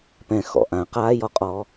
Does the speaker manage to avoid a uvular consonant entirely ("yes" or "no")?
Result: no